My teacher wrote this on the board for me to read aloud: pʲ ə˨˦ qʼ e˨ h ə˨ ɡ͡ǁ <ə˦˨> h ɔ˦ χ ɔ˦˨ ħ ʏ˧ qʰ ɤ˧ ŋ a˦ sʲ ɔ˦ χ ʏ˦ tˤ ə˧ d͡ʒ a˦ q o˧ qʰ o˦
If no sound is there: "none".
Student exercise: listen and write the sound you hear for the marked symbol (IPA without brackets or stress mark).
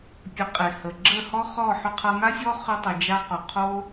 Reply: ə˦˨